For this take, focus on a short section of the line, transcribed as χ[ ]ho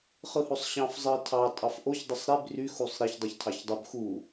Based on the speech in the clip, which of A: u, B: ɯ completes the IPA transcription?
B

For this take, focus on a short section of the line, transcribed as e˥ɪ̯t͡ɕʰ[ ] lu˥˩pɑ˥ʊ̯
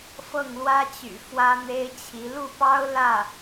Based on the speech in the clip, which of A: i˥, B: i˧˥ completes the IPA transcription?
B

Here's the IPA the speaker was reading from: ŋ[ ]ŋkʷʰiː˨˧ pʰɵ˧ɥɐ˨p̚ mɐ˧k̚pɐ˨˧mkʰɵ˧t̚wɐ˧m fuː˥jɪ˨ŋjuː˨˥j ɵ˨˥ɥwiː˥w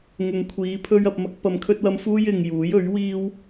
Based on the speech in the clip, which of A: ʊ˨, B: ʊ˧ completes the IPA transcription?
A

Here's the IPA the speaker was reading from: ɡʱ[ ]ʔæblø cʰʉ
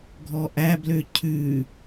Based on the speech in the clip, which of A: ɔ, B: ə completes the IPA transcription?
A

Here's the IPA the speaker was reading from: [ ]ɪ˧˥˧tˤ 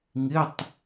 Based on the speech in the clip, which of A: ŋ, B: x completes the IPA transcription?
A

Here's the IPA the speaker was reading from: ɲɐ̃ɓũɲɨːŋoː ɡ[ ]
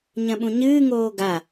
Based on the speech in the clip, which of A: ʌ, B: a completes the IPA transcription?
B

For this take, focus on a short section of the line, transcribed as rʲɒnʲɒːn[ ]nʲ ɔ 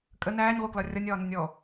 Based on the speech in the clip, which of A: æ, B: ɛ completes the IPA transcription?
B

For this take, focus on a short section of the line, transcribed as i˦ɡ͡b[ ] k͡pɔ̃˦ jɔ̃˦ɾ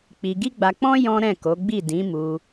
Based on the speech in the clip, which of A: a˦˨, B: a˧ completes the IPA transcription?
B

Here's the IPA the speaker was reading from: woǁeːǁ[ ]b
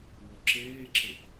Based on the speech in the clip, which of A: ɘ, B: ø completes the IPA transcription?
A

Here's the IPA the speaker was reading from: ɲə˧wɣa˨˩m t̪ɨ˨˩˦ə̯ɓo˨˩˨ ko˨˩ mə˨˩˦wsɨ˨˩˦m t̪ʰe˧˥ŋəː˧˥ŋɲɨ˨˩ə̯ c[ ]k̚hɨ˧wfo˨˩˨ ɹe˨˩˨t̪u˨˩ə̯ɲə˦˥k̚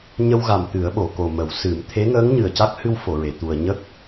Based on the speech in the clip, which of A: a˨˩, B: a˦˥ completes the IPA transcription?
B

